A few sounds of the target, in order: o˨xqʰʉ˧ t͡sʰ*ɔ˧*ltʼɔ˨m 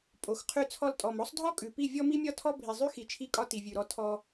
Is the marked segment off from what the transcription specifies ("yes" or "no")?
no